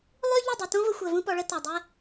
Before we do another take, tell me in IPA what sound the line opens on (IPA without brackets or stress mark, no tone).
lˠ